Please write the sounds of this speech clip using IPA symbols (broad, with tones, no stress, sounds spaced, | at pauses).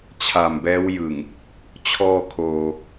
t͡ɕʰ a˨˩ m b ɛː˦˥ w j ɯ˨˩ ŋ | t͡ɕʰ ɔː˧ kʰ oː˧